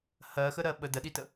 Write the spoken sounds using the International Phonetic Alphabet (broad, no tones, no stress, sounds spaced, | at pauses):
h ɜ x ə ɾ ɜ ɓ ə d ə ɗ i t ə